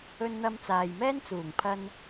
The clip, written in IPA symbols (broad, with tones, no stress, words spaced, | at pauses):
ɵ˧nn̪ɐ˧m t͡saː˨jmɛː˥n t͡suː˨˩ŋpʰɐ˧n